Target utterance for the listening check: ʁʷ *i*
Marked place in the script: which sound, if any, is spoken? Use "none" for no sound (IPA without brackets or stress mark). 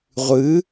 ɨ